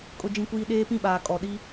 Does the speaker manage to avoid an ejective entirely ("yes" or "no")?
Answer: no